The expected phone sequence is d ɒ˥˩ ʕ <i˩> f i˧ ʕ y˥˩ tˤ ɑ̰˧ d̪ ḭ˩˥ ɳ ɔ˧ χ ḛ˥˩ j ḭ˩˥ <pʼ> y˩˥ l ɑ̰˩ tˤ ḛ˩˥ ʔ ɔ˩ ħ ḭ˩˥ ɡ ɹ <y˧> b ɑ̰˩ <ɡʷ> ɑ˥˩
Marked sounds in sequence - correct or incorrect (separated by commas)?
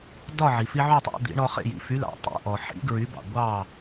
correct, incorrect, incorrect, correct